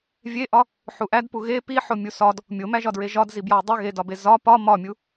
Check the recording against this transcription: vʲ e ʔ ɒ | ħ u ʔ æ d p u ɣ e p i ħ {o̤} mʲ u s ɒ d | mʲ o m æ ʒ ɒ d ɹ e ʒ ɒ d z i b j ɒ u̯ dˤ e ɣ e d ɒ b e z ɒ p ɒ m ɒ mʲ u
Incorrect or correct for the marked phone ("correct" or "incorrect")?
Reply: incorrect